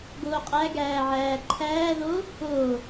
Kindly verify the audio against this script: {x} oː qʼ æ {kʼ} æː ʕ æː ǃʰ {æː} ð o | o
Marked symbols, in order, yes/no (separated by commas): no, no, yes